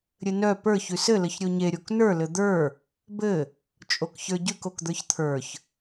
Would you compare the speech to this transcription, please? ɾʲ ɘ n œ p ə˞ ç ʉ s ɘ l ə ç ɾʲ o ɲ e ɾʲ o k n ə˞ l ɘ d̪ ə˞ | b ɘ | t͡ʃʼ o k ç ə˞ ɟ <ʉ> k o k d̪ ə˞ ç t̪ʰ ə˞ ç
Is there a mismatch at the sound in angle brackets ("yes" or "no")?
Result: no